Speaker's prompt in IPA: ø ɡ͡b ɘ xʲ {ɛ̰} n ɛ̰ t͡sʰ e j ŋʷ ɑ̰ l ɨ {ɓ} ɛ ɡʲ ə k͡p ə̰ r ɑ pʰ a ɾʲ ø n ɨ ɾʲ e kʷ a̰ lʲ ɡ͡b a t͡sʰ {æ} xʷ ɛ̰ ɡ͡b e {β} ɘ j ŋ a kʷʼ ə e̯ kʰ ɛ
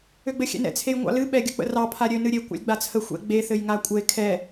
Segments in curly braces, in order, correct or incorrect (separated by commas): correct, correct, incorrect, incorrect